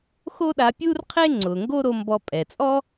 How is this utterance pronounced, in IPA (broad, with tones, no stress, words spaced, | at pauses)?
xo˥ɗa˧pʲuː˥rqʰe˥ ŋ͡ǀʊː˩ŋɡo˥ɾo˧mbɔ˧ pʼɛ˩t͡sʼɔ˥